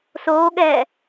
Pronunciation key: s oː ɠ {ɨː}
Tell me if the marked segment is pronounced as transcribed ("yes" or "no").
no